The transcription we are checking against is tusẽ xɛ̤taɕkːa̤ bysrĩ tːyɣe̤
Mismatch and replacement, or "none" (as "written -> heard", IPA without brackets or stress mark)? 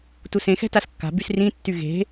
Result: ɕ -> s